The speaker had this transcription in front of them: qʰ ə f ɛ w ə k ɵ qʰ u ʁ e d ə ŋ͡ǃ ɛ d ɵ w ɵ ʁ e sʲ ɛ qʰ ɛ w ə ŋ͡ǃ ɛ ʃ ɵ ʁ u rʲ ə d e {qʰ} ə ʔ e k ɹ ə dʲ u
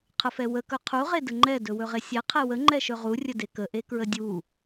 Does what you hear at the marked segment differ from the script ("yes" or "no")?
yes